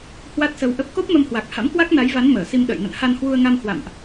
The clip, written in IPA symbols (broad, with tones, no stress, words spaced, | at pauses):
hwa˦˥t̚sə˧wʔə˦˥p̚ ko˦˥p̚mə˧mhwa˨˩k̚ ha̰˧˥mkwa˦˥k̚na˨˦jva˨˦n məː˧˩si˧mɗə̰ː˧˨j nə̰˧˨nha˧nhwu˧ə̯ŋa˧m hwa̰˧˨mʔ